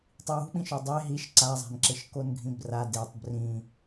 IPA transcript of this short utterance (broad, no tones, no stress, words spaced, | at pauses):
tˤiwṳɓĩʃo dˤe ɦiʃ ǀazˤa̤nǁɪʃ konɡʱĩbra detˤ brĩ